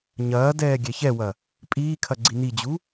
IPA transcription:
ɲ ɐː d ɛː ɡʲ ɛ ç ɛ w ɐ | pʼ iː kʰ ɐ ɡ͡ǀ i n i d͡ʑ u

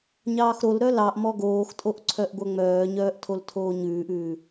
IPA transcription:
ɲ ɑː x ɾ o l ɾ œ l ɑ ʔ m ɔ ɡ oː x tʼ o ʔ ǀʰ œ ʔ ɡʷ œ ŋ͡m œː ɲ œː ʔ tʰ o l tʰ oː ɲ ʉː ʔ ʉː

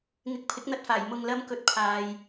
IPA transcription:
ŋ ɪ˨˥ k̚ pʰ ɪ˨˥ k̚ n̪ ɐ˧ t̚ f aː˨˩ j m ʊ˨ ŋ l ɐ˨˧ m k ɵ˨ t̚ pʰ aː˨ j

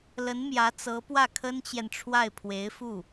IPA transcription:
l ə˧˥ n m j ä˧˥ t͡s ɤ˧˥ p w ä˥˩ kʰ ə˥ n t͡ɕ j ɛ˨ n ʈ͡ʂʰ w a˥˩ ɪ̯ pʰ w e˧˥ ɪ̯ f u˥˩

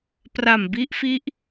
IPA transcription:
p r a˨˩ m b i˦˥ ʔ f i˦˥ ʔ

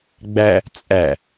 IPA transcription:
ɡ͡b æ | t͡sʼ æ

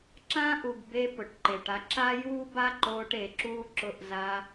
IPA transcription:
ǁ ãː˦ ʔ u˨ ɡ b e˧ p ʊ˨ ʈ ǃ ɪː˨ ʈ a˦ ǁ a˦ j uː˦ b a˦ ǃ oː˧ ʈ e˨ ǁ uː˦ ǁ ʊ˧ ʔ z a˧

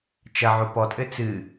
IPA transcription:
t͡ʃ ɐ ʕ o p ɔ tʼ ɘ t͡s ɨ

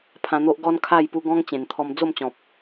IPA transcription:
pʰ ã˧ n̪ o˦ ʔ ɡ ɔ˦ n kʰ a˥˧ j p u˧ ɡ ɔ̃˦ ŋ t͡ɕ ẽ˨˩ n t̪ʰ ɔ˧ m d͡z o˥˧ m t͡ɕ ɔ̃˨ p̚

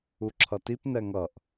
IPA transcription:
u ǁʰ ʌ t i p n ɛ ŋ ʌ ʔ

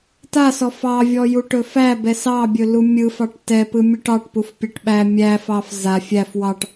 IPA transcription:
t a s ɔ f ɑ vʲ ɔ j u ʈ ɵ f æ b ɛ s ɑ bʲ ɵ l u mʲ ɯ f ɑ ʈ t ɛ p ɯ mʲ u ʈ ɑ ʈ p u f pʲ a ʈ ɓ æ mʲ æ f ɑ f z a fʲ æ f w ɑ ʈ

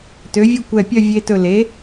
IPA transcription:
t ø˩˥ vʲ u˥˨ kʷ ɛ˧˩ pʲ œ˥˨ vʲ e˧ t ɵ˧˩ l e˩˥

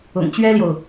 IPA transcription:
ʊ̰˨˩ ŋ t͡ɕ ɥ ɛ˦ l j o˨ ʊ̯

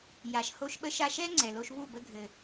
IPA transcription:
j a˨ ʃ h o˧ ʃ ɓ ə˧ ʃ a˧ ʃ ɛ˦ ŋ͡ǀ ɛ˨ l o˧ ʃ β u˦˨ b ə˧ ɡʱ ɘ˨

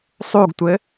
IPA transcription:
sˤ u ɡ tʷ ɘ

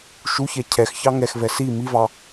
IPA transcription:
ʃ u ç ɛ cʰ ɛ x ç ɑ ŋ ɛ x v ɛ s i m i v ɑ

